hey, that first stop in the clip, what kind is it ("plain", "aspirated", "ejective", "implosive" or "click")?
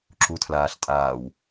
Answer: click